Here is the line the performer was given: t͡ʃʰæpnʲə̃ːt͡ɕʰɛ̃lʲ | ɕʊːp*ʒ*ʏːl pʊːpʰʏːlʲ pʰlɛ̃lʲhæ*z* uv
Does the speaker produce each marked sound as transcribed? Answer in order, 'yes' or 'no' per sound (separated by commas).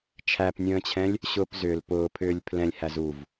no, yes